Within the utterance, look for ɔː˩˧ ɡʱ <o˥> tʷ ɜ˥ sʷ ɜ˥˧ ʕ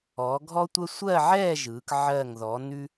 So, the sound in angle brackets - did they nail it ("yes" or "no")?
no